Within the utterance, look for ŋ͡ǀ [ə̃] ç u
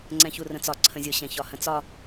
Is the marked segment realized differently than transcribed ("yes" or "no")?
yes